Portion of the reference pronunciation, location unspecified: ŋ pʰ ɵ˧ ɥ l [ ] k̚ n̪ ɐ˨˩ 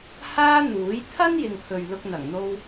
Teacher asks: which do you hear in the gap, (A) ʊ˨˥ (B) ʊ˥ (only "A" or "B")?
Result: B